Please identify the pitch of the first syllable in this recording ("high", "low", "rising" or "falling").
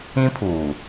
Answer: high